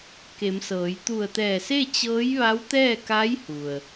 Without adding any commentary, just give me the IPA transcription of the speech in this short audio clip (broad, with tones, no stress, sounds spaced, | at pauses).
k e˩˧ m s ɤː˩˧ j t̪ u˧˩ ə̯ t̪ ɛː˧˩ s e˥˨ t͡ɕ ɤː˧˥ j ʋ a˧˥ w t̪ ɛː˥˨ k a˧˥ j h u˩ ə̯